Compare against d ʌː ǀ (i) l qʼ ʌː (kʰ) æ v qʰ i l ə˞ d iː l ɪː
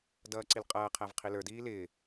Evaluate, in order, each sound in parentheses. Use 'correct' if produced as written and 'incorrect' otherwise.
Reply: correct, incorrect

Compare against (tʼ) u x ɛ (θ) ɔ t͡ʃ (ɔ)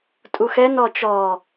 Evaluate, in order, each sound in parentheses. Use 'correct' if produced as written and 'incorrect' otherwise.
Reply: correct, incorrect, correct

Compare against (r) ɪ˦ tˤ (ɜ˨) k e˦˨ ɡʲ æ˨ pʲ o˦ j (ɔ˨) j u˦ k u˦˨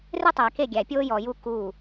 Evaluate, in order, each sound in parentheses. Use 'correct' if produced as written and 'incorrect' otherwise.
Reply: correct, incorrect, correct

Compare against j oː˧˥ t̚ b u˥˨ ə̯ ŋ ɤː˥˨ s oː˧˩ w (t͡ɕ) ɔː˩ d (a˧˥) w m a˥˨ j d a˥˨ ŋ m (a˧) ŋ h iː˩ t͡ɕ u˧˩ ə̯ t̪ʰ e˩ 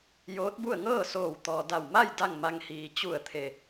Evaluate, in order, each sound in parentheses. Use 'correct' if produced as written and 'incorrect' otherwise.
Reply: incorrect, incorrect, correct

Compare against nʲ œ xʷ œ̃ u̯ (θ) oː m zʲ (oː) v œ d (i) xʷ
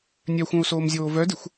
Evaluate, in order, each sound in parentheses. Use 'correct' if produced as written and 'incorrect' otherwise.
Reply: incorrect, correct, correct

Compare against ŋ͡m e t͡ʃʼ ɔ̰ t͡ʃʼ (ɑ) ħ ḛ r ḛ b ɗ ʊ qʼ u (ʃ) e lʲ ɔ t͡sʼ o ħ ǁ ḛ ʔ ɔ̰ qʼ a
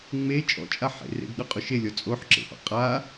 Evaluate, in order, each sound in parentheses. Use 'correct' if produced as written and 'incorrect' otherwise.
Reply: incorrect, correct

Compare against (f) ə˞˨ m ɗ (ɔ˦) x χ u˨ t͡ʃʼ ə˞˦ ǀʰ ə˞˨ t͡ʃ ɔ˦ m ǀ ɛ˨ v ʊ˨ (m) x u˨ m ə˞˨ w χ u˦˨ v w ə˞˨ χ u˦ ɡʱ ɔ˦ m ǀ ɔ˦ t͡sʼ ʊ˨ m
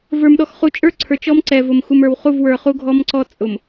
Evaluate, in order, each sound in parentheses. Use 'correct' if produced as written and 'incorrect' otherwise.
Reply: incorrect, incorrect, correct

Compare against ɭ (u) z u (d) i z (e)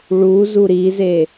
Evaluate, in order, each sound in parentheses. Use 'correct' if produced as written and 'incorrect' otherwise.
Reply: correct, incorrect, correct

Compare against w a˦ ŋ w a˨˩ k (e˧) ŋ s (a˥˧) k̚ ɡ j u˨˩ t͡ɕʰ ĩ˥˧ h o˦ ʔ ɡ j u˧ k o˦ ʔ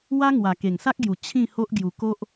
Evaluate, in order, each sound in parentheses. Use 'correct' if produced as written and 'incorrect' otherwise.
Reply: incorrect, incorrect

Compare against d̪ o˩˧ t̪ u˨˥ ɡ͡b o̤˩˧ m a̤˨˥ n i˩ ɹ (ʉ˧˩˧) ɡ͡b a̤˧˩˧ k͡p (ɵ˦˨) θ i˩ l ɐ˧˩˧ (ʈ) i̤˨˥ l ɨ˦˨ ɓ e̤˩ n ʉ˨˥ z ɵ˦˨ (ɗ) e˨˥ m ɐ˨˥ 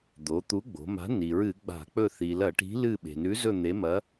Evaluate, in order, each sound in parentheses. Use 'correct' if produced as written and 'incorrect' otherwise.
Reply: incorrect, correct, correct, incorrect

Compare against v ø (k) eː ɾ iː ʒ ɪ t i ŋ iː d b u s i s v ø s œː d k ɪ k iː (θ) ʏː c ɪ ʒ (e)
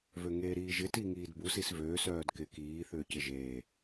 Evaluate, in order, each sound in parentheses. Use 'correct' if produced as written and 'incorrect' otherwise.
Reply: incorrect, correct, incorrect

